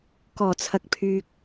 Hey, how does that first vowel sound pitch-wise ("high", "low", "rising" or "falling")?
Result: low